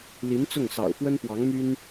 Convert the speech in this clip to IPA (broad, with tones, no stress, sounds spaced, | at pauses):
l i˧˥ n t͡s ʊ˥˩ ŋ s ɑ̰˨˩ ʊ̯ f w ə˥ n p w ɑ˧˥ ŋ m y˥ n